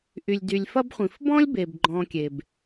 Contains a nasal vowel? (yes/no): yes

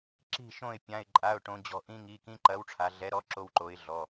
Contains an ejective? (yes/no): yes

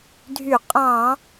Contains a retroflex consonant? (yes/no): no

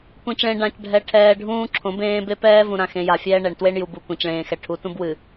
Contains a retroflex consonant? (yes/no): yes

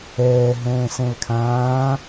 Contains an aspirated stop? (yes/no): yes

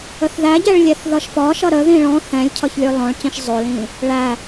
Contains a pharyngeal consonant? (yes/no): no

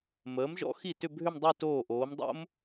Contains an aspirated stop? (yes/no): no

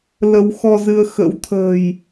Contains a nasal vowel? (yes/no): no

